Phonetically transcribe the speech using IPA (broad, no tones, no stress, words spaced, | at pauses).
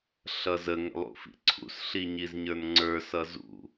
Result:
ɬʌzə ŋə̰lˠṵfḭǀʰṵs ɬiɲizɲə˞nŋ͡ǀə˞ sʌzṵ